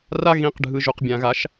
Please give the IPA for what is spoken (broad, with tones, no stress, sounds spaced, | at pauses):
r a˧ ɣ ĩ˩˧ q ɖʱ ɯ˩ ʒ u˩ q bʲ ã˩ ɣ a˩˧ ʃ